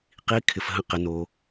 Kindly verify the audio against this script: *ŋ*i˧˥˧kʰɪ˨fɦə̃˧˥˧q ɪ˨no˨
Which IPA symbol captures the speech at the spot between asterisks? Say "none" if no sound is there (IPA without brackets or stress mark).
q